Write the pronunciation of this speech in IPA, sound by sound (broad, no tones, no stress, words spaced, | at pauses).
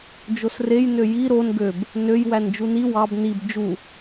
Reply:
d͡ʒosrej nøji ɾon ɡøb | nøj wænd͡ʒuni wɑb nib d͡ʒu